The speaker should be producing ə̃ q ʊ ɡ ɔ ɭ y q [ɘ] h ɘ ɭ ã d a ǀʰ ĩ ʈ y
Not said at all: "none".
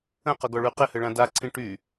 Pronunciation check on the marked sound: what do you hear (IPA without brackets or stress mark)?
ɘ